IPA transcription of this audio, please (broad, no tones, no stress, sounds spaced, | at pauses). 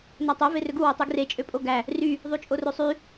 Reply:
n æ tˤ e v e r ø ɡ u w e tˤ y ɡ r e t͡ʃʼ ø pʼ o ɡ æ | r y | ðˤ y t͡ʃʼ o r ø sˤ y